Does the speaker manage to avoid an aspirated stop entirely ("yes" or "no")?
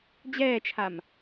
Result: no